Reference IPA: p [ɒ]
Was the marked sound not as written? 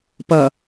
yes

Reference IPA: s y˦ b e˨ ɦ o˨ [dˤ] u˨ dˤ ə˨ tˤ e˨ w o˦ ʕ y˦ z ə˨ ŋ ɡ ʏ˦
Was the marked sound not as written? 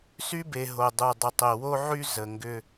no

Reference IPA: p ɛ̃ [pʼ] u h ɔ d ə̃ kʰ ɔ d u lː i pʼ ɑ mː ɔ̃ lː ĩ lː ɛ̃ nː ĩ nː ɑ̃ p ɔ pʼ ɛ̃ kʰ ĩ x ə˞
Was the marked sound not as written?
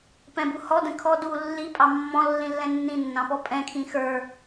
yes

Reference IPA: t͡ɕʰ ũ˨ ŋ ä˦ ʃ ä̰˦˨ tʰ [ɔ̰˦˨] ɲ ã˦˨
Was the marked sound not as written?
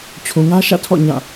no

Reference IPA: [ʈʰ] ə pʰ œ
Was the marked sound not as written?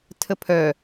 yes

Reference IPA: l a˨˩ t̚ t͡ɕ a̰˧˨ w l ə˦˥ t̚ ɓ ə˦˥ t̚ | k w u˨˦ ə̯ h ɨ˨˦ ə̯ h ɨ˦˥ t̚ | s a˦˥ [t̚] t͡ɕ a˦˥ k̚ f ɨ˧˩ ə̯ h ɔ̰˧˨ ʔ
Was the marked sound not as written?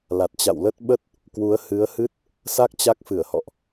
yes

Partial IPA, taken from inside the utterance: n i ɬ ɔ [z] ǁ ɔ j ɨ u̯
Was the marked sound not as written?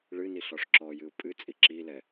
yes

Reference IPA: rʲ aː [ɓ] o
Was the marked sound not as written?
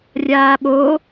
no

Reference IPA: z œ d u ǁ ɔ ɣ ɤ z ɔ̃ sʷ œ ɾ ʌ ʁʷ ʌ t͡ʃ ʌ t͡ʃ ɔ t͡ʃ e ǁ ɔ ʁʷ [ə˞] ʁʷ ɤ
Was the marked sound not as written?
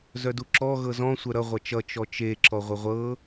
yes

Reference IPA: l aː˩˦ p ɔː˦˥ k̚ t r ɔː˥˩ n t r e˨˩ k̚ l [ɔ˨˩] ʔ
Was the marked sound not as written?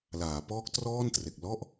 yes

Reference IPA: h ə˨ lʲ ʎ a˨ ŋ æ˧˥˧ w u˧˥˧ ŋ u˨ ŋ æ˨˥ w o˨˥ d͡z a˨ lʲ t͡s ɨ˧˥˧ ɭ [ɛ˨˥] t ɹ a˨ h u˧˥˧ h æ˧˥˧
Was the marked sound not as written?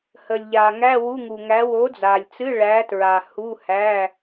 yes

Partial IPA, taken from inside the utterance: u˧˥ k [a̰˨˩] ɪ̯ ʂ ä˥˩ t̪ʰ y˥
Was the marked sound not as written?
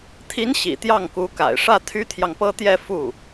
no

